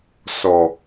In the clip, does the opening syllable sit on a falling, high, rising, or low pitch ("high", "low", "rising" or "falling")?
low